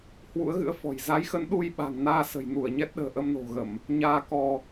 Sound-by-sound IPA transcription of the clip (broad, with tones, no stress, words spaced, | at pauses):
hwṵ˧˥ə̯ɣɨ̰˧˥ə̯fɔ̤˨˩j za˨˦jxə˨˦n ɗu˧jɓa̤˨˩ŋ naː˧sə̤˨˩jnu˧˩ə̯ ɲɛ˦˥t̚ɗə̤ː˨˩ ʔə˧mno̤˨˩ɣə˧˩˨m | ɲaː˧kɔ˧